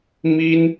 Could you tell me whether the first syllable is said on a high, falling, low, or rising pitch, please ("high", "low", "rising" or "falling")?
high